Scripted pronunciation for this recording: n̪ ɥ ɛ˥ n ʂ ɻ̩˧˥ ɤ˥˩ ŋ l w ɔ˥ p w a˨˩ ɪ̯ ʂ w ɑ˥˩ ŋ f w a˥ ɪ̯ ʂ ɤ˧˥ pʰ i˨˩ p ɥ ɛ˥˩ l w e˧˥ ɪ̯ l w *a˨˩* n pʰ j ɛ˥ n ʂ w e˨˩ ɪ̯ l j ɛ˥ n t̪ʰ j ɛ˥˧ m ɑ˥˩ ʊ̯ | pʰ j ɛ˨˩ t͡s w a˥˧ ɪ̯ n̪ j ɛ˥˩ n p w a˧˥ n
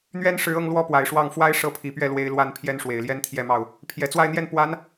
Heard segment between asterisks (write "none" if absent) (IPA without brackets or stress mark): a˥